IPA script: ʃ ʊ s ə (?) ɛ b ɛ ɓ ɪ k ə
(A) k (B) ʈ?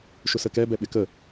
A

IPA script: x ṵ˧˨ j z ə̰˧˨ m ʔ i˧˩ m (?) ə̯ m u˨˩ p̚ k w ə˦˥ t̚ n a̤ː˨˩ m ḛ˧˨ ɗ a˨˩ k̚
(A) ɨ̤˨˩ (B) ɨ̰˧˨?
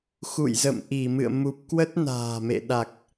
B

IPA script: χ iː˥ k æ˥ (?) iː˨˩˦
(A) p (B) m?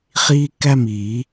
B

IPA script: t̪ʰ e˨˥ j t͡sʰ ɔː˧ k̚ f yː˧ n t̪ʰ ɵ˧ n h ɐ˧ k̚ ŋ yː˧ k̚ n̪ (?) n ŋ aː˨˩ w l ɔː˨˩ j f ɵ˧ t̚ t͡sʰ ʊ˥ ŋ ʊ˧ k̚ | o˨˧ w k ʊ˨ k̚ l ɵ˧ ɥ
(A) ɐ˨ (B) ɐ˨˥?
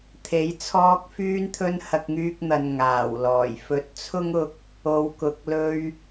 A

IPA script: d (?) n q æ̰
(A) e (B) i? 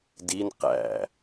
B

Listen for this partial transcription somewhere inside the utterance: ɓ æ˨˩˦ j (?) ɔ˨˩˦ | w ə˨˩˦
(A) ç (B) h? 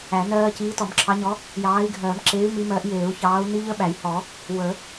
B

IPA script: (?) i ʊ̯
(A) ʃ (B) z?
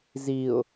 B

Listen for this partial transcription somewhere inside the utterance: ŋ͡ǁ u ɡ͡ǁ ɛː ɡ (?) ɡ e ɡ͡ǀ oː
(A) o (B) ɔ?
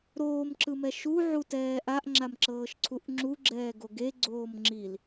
A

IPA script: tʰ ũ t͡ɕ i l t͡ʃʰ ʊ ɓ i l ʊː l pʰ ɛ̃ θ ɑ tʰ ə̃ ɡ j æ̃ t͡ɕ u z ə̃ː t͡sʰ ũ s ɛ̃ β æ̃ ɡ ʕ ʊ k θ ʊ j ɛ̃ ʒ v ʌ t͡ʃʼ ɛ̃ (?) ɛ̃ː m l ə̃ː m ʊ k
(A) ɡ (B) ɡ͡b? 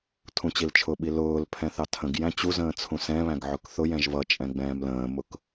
B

